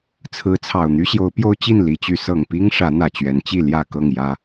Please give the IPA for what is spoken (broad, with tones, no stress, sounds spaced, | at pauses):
t͡sʰ ɹ̩˨˦ t͡sʰ ɑ˨˩ ʊ̯ n̪ y˦ ɕ j o˨˦ ʊ̯ p j o˦ ʊ̯ t͡ɕ i˥˨ n l i˨˦ t͡ɕ y˨˦ s ɤ˨˩ ŋ p i˦ ŋ ʂ ä˨˦ n̪ ä˨˩ t͡ɕ ɥ ɛ˨˦ n t͡ɕ i˥˨ l j ä˥˨ k ɤ˥˨ ŋ j ä˦